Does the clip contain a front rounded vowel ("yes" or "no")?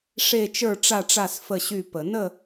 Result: yes